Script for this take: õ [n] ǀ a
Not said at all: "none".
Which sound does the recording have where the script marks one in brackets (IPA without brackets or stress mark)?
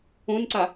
n